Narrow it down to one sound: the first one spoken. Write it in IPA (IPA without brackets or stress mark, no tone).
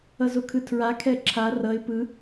ʌ